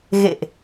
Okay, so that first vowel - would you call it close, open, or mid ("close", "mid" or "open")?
mid